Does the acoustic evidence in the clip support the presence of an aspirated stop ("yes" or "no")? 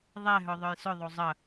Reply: no